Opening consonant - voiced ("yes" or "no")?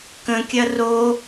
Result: no